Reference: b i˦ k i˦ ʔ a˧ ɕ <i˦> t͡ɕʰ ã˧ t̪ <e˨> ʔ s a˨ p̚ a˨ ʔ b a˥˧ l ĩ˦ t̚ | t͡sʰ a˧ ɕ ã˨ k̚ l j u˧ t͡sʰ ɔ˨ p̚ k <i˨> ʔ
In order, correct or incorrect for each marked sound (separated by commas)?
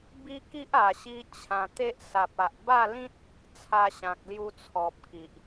correct, incorrect, correct